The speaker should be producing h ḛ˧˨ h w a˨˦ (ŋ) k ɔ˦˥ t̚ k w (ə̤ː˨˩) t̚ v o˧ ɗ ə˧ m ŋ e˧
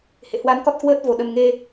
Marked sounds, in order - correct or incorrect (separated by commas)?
incorrect, incorrect